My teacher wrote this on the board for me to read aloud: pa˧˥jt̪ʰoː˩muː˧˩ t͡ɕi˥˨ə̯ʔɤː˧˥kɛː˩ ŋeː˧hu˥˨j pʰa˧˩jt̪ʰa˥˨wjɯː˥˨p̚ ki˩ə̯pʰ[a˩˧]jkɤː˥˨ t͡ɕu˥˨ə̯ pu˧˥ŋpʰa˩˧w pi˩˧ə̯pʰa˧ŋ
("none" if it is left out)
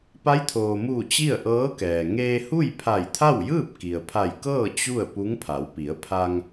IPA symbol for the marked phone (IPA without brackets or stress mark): a˧˩